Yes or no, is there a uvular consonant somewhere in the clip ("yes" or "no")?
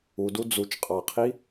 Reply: yes